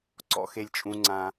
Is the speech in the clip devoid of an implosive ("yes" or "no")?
yes